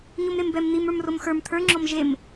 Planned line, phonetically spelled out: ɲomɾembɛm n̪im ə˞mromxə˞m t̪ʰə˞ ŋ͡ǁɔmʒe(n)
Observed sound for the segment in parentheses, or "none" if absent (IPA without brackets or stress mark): m